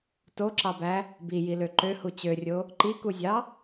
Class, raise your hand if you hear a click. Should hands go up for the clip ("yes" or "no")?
yes